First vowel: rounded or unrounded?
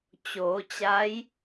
rounded